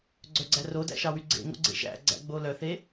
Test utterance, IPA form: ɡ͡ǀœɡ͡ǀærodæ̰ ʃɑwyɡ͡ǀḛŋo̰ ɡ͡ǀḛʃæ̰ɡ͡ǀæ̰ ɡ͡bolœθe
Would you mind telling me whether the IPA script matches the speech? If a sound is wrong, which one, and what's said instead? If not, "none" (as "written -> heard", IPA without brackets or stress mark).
none